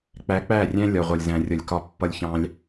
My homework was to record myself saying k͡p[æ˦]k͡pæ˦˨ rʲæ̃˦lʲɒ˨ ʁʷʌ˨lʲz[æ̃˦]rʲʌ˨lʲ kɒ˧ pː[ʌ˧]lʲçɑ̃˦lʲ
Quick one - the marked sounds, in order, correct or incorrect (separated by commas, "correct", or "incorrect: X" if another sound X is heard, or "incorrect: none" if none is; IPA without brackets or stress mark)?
incorrect: æ˨˦, incorrect: æ̃˨, incorrect: ʌ˦